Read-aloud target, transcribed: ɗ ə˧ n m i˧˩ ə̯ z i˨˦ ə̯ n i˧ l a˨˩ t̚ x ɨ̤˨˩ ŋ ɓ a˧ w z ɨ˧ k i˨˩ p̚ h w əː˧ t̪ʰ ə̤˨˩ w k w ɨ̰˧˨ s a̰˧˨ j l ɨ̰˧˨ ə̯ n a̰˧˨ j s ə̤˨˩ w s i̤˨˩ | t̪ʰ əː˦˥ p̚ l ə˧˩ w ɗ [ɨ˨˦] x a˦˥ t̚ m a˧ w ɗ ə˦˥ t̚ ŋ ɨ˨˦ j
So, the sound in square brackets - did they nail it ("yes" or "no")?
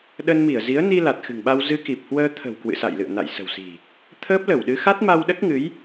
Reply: yes